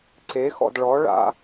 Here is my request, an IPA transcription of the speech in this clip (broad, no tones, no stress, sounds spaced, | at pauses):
ǀ e x ɔ̰ d ɭ ɔ ɭ a̰